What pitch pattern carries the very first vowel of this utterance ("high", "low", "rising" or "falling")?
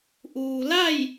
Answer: low